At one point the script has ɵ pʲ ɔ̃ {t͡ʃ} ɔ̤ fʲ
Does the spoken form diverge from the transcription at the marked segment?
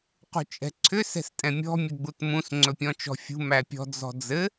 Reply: no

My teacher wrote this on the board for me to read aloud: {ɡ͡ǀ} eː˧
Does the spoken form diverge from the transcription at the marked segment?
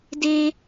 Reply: yes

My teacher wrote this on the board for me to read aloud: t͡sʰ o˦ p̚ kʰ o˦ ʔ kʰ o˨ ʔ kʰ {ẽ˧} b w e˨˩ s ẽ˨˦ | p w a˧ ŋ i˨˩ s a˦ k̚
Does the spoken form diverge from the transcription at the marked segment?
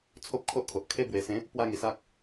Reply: yes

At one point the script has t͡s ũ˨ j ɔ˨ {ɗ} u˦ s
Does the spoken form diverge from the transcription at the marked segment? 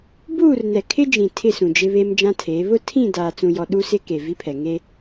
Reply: no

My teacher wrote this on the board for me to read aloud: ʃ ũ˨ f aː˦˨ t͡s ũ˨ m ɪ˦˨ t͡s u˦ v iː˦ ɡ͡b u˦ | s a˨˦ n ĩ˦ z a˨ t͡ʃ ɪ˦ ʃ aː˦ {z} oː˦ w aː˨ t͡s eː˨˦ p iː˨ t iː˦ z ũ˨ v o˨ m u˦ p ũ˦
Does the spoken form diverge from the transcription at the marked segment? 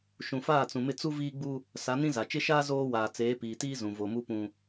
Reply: no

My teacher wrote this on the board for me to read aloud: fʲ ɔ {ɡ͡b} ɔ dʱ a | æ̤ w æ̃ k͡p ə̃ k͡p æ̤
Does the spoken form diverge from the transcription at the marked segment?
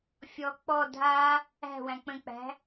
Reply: yes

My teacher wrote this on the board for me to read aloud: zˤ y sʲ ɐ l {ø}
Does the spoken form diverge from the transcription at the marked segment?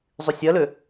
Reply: no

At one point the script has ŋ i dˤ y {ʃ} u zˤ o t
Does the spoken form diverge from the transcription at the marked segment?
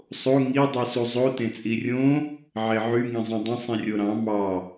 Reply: yes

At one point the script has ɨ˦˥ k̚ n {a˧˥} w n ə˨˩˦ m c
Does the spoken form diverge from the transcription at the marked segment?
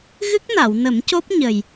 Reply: yes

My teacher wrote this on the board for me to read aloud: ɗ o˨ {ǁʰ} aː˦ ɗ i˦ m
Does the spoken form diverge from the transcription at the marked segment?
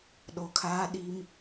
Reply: yes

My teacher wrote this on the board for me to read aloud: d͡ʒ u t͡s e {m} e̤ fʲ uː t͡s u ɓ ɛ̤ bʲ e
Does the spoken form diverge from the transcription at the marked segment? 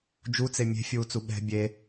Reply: yes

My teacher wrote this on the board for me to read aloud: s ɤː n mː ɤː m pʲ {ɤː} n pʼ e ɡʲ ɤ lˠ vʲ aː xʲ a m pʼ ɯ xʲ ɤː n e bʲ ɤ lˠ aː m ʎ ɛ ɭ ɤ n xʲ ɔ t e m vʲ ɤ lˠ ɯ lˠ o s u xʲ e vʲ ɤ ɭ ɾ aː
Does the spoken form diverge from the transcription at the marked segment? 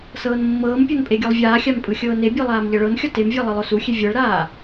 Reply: yes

